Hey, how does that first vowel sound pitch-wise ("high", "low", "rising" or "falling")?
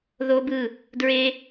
high